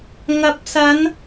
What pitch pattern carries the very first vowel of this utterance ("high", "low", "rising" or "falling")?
rising